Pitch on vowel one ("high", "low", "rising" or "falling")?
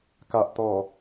low